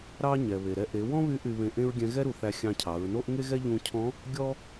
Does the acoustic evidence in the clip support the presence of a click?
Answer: no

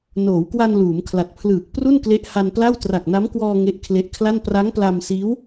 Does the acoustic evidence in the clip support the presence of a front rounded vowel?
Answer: no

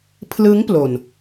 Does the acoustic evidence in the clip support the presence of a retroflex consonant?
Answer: no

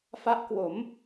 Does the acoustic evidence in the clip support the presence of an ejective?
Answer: no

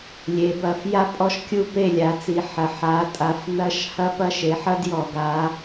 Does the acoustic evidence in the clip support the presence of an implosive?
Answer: no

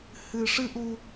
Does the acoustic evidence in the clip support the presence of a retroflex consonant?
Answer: yes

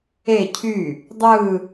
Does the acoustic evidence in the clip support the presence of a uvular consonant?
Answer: no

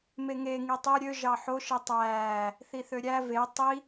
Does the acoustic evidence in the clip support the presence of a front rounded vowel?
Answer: yes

